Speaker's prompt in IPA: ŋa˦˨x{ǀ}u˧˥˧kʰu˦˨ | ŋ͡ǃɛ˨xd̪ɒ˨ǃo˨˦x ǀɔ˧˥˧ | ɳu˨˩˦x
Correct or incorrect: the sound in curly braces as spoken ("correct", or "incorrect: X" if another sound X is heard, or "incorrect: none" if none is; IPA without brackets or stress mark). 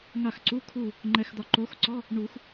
correct